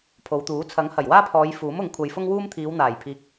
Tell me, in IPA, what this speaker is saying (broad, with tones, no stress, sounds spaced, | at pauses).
pʰ o˨˧ w t̪ uː˨˥ t͡sʰ ɐ˨˥ ŋ h ɐ˨˩ j w aː˥ pʰ ɔː˨˧ j f uː˨˥ m ʊ˨˧ ŋ kʷʰ ɐ˧ j f ʊ˥ ŋ w uː˥ m t̪ʰ iː˨˧ w n̪ aː˨˩ j pʰ iː˨ k̚